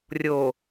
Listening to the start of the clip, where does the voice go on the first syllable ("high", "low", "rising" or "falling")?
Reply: low